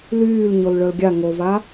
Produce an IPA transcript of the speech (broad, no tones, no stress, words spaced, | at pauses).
lyːl ɲolɭœlɡʲa ŋova